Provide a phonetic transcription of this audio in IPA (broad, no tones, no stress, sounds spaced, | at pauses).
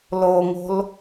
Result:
l o ŋ o̤ l